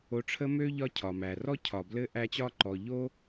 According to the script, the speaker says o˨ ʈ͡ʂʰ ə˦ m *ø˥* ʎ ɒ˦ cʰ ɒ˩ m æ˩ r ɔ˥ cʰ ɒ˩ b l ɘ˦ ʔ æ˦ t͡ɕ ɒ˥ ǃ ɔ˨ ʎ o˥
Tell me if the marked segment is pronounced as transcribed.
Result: yes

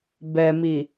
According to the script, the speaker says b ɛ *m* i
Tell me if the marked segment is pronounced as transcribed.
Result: yes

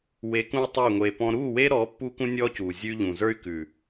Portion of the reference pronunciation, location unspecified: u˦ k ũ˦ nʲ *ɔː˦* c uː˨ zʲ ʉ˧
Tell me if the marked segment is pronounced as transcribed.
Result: yes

